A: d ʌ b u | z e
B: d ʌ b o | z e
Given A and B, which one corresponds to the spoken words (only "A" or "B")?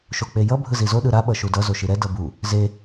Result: A